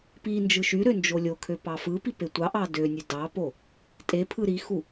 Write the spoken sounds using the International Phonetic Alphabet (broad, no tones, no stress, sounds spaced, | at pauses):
p i n d͡ʒ ɯ ʃ y ɾ ø n d͡ʒ o lʲ o kʰ ø p ɑ f ɯ p i p e tʷ ɑ ʔ ɑ d ø nʲ ø d ɑ p o | tʼ e pʰ ɯ ɾ i x u